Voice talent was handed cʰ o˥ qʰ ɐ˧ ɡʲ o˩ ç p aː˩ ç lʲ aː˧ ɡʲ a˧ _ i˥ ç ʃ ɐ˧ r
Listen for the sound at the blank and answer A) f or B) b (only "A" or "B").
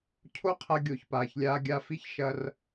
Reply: A